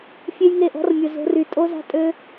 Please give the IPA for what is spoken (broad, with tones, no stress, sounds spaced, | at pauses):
fʲ e˦ j ŋ e˦˨ ʔ ɔ̤˦ r mʲ ʊ˨ z o̤˧ r y˨ tʼ o˦ z a̤˦ tʼ ø˦